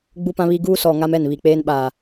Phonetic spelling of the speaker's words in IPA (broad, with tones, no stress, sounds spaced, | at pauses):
ɡ͡b u˦ p ã˦ β i˦ ɡ uː˦ s ɔ˨ ŋ a˦ m ɛ˦˨ n β i˨ k͡p eː˦ n ɓ aː˨